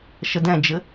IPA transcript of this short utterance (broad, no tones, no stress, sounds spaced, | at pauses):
ʃ ə d ɛ̃ d͡ʒ ɘ